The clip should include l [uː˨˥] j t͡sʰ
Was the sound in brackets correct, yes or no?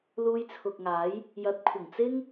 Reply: no